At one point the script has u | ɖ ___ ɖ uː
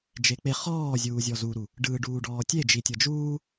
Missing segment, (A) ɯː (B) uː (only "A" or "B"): A